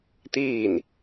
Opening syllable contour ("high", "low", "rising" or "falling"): falling